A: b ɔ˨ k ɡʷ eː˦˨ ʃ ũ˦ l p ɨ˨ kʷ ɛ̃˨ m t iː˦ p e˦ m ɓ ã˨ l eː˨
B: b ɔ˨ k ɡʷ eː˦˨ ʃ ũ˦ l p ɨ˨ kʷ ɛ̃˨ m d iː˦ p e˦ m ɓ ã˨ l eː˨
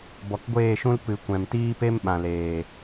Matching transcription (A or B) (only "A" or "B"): A